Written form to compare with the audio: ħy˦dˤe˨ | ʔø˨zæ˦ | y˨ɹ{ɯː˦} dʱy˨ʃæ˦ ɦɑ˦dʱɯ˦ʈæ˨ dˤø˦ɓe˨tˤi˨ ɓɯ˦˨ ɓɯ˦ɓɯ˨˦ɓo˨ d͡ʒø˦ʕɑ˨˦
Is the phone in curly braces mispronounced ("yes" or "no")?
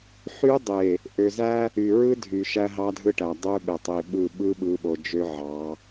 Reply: yes